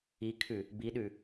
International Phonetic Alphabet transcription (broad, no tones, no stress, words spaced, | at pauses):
ikʰʉ | biɗʉ